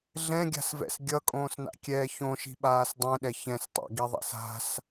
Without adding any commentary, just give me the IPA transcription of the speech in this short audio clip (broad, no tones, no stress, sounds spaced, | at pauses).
ɮ ɛ̃ ɡʲ a̤ s v ɛ̰ s ɡʲ ʌ kʼ õː s n a̰ kʲ ɛː ç õ ʃ i̤ ɓ aː s dˤ ɛ̃ ɗ ɛ ç ɛ̃ s tˤ a̰ ɡ i ðˤ a̰ s a̤ s